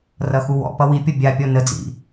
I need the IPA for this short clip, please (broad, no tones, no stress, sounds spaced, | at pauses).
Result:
r ʌ x u w ɔ̰ p ʌ w i pʲ ʌ bʲ a pʲ ɔ n ə d͡z ḭ